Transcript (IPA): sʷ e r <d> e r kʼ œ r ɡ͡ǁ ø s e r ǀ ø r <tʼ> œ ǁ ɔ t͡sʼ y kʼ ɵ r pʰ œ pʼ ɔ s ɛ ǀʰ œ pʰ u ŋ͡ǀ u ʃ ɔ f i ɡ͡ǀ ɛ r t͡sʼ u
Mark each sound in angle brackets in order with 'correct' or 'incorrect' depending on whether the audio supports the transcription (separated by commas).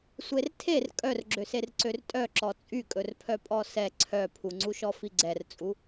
incorrect, correct